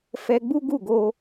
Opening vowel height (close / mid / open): mid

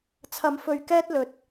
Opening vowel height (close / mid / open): open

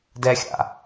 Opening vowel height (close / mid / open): mid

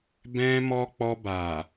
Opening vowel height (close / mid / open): mid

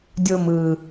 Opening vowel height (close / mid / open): mid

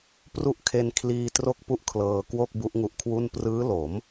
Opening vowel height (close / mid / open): close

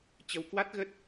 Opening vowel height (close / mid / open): mid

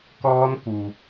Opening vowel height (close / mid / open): mid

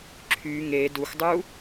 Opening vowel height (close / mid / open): close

